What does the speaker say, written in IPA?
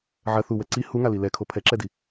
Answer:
ʕɐ θuwɛ ǀi huŋali lɛkʰo pʰɛǁɛdi

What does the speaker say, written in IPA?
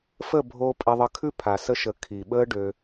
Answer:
fə˦˨bʱo˧ pʼe˧ðˤə˧kʰʉ˦pʰa˨ sə˧ʃə˨ kʰi˨ɓəː˦ɖø˧

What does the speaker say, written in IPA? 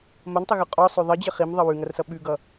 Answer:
mɐntˤəɣʉ qʼɔsˤø ðˤʌd͡ʑə χimðˤʌ wʉŋɐrsʌ ɓʉɡʌ

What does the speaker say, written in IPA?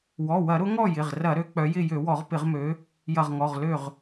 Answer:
wɔ˩˧˩wɐ˧˩˧ɾʊ˨˦ ŋɔ˥˨jɪ˩˧˩ʁrɐ˧˩˧ ɾø˨˦k͡pœ˨˦jɪ˥˨ jø˧˩˧wɔ˧˩˧ʁpɪ˧˩˧ʁmø˨˦ | jɐ˧˩ʁŋɔ˩˧˩ʁlø˥˨ʁ

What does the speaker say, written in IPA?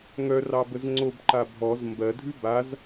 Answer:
ŋœ rɑbəzŋ͡ǀobǃa bʱɔz mbɜdʱʉ baz

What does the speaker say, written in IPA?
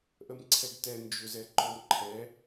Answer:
ʔəmǀʰɛɡtɛ nd͡ʒʏ zɛǃɔmǃʰɛ

